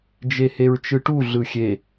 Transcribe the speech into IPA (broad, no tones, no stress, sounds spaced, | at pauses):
d͡ʒ e h e ɹ t͡ʃ ɯ ʈ u ɮ ɯ xʲ e